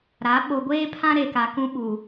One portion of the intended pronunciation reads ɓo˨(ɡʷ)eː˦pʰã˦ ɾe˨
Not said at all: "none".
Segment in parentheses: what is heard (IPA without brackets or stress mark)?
ɡʷ